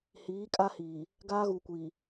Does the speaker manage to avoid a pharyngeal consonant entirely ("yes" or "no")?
yes